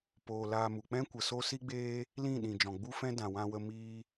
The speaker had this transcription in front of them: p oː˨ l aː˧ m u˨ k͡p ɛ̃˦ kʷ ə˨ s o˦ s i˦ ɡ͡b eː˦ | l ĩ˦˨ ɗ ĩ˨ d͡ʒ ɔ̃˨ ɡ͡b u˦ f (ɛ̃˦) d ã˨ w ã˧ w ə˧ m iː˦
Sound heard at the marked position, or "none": ɛ̃˦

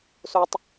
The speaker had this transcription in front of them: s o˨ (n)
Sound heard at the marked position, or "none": tˤ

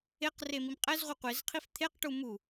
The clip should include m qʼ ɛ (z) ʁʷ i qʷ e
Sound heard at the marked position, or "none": z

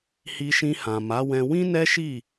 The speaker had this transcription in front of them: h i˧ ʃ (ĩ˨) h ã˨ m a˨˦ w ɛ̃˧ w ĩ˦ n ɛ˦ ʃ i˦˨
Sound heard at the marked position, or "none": ĩ˧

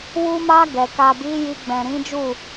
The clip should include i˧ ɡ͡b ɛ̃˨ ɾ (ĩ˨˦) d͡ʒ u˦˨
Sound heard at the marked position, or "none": ĩ˨˦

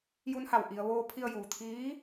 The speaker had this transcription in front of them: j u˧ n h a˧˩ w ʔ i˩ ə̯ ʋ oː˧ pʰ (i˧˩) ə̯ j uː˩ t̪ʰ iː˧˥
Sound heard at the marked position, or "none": i˧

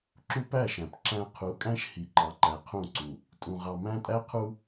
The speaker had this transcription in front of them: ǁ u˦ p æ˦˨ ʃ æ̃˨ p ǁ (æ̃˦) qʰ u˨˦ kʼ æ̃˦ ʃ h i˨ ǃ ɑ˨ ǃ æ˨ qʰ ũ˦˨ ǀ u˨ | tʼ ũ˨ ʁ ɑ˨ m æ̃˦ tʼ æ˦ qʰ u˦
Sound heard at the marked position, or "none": æ̃˦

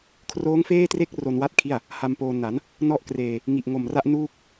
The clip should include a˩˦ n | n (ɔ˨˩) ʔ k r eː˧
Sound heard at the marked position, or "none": ɔ˥˩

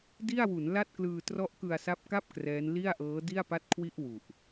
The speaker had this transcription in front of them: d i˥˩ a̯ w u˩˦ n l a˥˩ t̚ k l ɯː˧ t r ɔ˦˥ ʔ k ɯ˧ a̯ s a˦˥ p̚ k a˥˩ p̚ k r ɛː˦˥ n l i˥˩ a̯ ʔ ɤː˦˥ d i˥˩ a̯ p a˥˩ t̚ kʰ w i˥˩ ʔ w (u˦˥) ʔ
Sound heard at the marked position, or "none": u˨˩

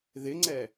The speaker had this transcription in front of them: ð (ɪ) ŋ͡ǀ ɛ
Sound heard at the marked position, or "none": ɪ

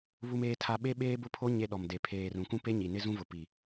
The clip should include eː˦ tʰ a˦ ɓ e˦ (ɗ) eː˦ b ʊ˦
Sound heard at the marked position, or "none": ɓ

